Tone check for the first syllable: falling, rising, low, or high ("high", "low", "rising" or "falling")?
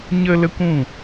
high